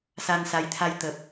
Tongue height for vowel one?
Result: low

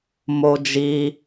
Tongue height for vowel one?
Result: mid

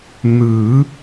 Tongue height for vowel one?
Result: high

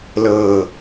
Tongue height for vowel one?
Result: mid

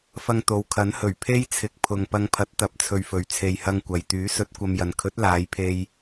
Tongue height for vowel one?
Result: low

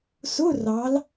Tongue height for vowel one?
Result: high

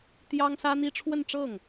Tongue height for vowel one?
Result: low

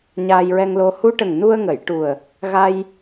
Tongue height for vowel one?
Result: low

